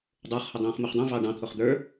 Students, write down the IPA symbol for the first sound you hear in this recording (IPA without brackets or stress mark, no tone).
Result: dˤ